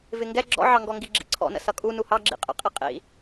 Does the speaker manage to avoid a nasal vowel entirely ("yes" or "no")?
yes